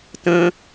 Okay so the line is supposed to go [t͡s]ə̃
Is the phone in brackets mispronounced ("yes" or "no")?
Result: yes